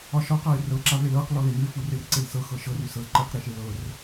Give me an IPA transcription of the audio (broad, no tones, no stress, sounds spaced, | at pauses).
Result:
ɒ ʃ ɒ q a ɪ̯ r ɤ ǁ a v e l ɤ q l ɔ l e n ʉ ɪ̯ f u r e r ǀ e l s ɤ x ɤ ʃ ɤ r ʉ s ɤ l ǃ e q ɾ e ʃ e l ɤ r